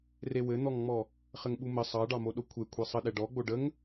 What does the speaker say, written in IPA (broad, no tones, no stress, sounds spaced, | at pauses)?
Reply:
r e w ɘ n̪ ɔ ŋ ŋ͡m ɔ | χ ɘ ŋ ɓ u m ə sˤ ɑ ɖ ɑ m o ɗ o kʷʰ e kʷʰ e sˤ ə ɗ ɛ ɖ ɔ ɡ͡b o ɖ ə ŋ